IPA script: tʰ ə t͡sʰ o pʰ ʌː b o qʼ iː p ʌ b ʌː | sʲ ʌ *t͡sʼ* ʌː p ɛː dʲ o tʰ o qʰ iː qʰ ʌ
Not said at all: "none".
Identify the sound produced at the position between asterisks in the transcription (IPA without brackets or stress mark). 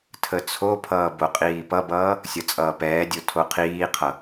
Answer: t͡sʼ